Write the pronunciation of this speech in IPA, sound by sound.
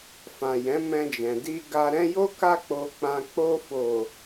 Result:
f ã˨ j ɛ̃˨˦ m ɛ̃˧ d͡ʒ ɛ̃˨ d i˧ ɡ a˧ ɾ ɛ̃˧ j o˦ k a˧ k͡p o˨ k͡p ã˨ k͡p o˧ f o˨

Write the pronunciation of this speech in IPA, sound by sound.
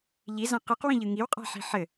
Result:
ʎ i z ã q ɯ q w ĩ ʎ ɯ ŋ i w qʼ a̤ ħ i̤ ħ ɘ

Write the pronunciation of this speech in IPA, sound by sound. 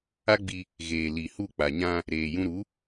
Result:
a˦ ɡ͡b i˧ | ɣ eː˨ l i˨ h u˦˨ k͡p a˨ ɲ ã˧ | ɾ eː˨ j ũ˧ ɾ u˨˦

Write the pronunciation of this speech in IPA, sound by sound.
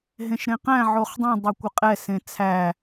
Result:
ɦ ẽ ʃ ɾ ẽ q æ̃ ʕ o χ dˤ ẽ dˤ e kʷ ə qʼ ɛ s ẽ t͡sʰ æ

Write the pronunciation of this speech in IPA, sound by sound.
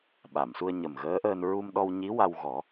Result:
ɓ a˨˩˨ m s u˧ ə̯ ɲ ə˨˩ m ɣ əː˧˥ ʔ əː˧ n ɹ u˧ m ɗ ɔ˧ w ɲ i˧˥ w a˧ w ɣ ɔ˨˩˦

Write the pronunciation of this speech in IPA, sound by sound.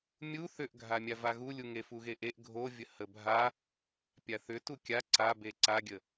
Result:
mʲ u θ ʏ ʔ ɡʱ a mʲ a v a ɣ u lʲ u ŋ e f u ɣ e ʔ e ʔ ɡʱ o vʲ ə h ə bʱ a | pʲ a θ ʏ t u kʲ a ǀ a b e ǀ a ɡʲ ə

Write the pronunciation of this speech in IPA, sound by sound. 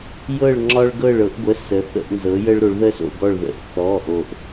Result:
j ɤ˧˩ ɭ ŋ͡ǁ ɒ˧ ɭ ɡ ɤ˧˩ ɭ ɤ˩˧ ʔ ɡʷ ə˩˧˩ s ə˩˧ θ ə̰˧˩ ʔ n z ɤ˩˧ j ə˧ ɭ ɾ o˩˧ ɭ ð ə˧ s o̰˧˩ ɡ ɔ˧˩ ɭ ð ə̰˧˩ ʔ θ ɔ˩˧˩ ʔ o˧˩ ʔ

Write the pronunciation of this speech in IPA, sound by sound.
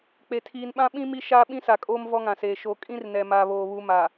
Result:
k͡p e˨ tʰ iː˨ n ɓ ã˦ ɓ ĩ˦ m i˦ ʃ aː˦ ɓ ĩ˦ s a˨ kʼ oː˦ m v ɔ˦ ŋ ã˨ s eː˨ ʃ o˨ kʼ ĩ˦ r n ɛ˨ m a˨ β oː˨ β u˨˦ m a˨

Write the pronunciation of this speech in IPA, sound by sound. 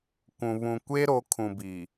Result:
kʷ ũ˨ β ũ˨ kʷ e˦ ɾ o˨˦ kʰ ũ˨ b i˨

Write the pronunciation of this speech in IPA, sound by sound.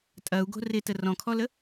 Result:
tʼ ɐ u̯ ɡ o̤ r ɪ t ə r ɔ̃ kʰ ɔ l ə

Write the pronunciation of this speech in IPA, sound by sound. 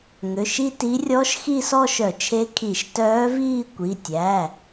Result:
ŋ ø˩˧˩ ʃ i˥˧ t i˧˥ rʲ ɔ˧˥ ʃ x i˥˧ s ɔ˥˧ ʃ œ˧˩˧ t͡ʃʰ e˧˥ kʰ i˧˩˧ ʃ t œː˧˥ v iː˥˧ kʷ i˩˧˩ tʲ æ˩˧˩

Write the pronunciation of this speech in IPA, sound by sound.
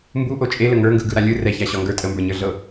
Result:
m b u ʔ o t͡ʃʼ e l ə ŋ ə˞ ŋ ɡ ɯ ɡ ɯ ɾ a lʲ ɯ r ɛ ç a ɕ ɒ ŋ ɡ ə˞ tʼ ə m b ə˞ ɲ ə˞ ɮ ɤ

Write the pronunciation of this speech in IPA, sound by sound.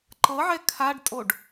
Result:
ǃ ɤ ʕ ɛ kʰ a ɖ tʼ o ɖ

